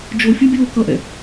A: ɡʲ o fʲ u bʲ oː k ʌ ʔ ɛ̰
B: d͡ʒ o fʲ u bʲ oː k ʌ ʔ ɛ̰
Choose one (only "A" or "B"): B